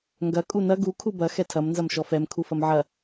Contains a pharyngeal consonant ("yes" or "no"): yes